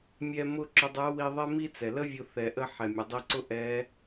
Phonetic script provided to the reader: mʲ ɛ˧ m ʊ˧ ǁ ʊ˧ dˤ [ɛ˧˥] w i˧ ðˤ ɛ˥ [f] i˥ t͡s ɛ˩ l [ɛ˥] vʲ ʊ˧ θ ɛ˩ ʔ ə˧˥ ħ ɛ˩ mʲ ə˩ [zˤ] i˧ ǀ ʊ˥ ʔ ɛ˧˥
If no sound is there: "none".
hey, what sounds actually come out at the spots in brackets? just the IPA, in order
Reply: ɛ˧˥, m, ə˥, dˤ

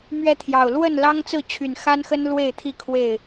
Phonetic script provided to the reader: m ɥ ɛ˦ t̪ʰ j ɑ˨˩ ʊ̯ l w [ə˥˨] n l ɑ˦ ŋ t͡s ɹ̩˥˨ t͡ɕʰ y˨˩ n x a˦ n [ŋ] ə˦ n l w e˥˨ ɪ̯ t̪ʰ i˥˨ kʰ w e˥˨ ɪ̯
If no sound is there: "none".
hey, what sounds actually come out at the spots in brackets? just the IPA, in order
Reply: ə˥˨, x

